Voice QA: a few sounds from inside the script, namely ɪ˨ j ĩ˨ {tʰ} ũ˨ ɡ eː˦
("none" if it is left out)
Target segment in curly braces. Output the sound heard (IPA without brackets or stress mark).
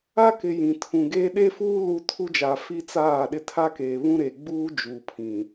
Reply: tʰ